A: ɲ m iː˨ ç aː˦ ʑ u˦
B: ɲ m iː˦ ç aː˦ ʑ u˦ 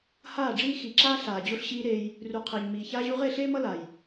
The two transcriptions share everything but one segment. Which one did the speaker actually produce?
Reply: A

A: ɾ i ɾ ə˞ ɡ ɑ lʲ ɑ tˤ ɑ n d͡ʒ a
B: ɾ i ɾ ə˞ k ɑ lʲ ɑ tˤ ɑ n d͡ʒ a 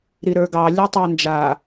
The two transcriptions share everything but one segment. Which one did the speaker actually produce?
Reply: A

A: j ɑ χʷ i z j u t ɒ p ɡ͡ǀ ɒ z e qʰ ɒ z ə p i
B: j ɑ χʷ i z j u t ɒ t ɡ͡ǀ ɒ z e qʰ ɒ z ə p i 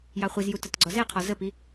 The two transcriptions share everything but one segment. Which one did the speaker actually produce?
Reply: B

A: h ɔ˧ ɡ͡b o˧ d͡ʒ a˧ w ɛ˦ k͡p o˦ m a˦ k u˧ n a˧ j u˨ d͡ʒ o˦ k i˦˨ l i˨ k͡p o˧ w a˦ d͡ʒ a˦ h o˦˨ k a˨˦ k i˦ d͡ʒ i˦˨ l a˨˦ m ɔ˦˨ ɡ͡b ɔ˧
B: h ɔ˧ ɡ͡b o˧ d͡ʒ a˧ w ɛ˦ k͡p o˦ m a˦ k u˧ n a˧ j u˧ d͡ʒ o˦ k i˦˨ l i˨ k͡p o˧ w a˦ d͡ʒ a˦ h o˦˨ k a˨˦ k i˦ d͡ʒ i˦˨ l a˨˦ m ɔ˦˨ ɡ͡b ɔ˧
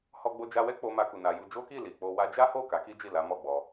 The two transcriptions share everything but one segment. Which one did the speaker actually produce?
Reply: B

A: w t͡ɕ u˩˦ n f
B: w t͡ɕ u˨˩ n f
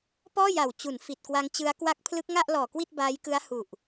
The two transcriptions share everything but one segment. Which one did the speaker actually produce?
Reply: A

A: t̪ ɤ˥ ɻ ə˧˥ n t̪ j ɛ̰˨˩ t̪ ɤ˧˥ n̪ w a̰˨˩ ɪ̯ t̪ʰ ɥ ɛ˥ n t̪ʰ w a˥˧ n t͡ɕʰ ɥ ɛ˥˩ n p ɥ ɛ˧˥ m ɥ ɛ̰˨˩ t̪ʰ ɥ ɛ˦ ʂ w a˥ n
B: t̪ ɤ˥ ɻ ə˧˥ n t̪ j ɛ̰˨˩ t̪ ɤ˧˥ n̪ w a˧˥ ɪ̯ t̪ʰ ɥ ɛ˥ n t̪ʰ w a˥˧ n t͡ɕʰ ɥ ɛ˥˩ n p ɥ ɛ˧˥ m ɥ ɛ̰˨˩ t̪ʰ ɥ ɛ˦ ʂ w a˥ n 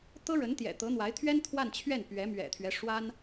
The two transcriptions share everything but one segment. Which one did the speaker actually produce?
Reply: B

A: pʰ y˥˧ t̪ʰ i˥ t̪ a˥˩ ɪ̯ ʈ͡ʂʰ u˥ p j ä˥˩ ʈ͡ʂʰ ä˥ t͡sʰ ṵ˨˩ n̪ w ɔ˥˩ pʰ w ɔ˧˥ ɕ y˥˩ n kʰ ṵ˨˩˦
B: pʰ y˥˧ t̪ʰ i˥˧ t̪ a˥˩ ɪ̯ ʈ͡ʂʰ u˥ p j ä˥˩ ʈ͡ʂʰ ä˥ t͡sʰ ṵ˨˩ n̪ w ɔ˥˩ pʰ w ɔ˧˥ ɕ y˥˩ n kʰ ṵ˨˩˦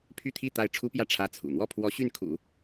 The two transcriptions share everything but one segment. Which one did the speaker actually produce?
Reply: B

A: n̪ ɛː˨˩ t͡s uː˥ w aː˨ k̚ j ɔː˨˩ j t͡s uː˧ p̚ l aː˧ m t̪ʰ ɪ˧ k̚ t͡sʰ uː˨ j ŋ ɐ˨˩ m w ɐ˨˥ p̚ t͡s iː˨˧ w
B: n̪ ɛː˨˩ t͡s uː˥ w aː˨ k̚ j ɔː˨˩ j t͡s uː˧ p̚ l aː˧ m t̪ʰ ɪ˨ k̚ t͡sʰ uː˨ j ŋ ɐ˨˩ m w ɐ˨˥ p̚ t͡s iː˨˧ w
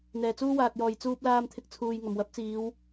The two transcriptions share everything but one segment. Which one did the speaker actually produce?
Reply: A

